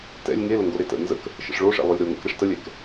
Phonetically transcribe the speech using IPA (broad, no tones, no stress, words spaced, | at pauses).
tɛ̰lʲ ŋeləŋɡo ɾetə̰ nzə̰k | ʃə̰ʂɭoʂɛ̰ lˠolʲɾoŋɛ̰k ɾɛʂtəlʲɛk